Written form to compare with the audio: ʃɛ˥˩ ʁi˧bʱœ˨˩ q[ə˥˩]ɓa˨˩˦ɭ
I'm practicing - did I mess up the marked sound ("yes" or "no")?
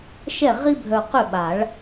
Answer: yes